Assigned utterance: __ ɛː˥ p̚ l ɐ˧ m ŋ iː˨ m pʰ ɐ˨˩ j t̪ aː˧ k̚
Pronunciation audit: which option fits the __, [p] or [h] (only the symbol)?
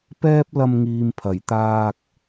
p